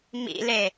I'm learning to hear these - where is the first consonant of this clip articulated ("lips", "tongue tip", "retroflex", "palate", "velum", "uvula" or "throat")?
lips